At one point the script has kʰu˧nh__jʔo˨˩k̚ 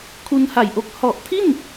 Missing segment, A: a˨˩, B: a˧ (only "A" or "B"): A